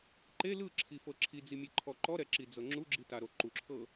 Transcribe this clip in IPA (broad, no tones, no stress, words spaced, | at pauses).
ǃe lɯǁʰifɤ ǁʰid͡zimʲeǃʰɔ ǃɔɾɛǁid͡zɤ ŋ͡ǁuɡ͡ǁitaɾo ǃuǁʰɤ